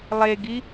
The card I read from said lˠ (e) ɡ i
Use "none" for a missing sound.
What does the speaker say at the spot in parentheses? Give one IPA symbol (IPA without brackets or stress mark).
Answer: e